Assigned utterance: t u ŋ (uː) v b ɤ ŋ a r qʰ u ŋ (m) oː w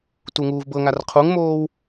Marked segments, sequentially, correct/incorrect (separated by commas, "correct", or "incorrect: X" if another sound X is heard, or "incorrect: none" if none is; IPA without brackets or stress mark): correct, correct